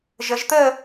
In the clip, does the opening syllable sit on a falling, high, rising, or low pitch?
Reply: rising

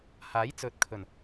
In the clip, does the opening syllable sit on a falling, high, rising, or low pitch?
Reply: rising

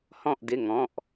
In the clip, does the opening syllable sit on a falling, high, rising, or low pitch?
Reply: falling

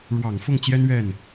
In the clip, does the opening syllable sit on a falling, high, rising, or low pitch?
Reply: low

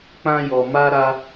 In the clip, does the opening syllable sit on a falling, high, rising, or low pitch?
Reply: high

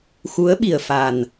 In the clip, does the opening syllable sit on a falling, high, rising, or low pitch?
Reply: rising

